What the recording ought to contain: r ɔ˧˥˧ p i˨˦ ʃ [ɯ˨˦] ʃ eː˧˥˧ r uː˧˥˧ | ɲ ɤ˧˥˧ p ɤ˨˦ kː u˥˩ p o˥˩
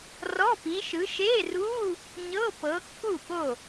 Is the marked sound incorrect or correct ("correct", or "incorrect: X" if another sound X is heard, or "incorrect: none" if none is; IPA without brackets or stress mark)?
correct